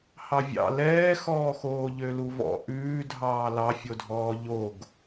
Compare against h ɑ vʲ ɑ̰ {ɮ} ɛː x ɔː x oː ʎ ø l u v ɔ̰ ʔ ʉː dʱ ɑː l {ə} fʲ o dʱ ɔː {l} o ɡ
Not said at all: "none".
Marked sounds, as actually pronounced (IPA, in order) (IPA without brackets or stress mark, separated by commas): l, ɑ, ʎ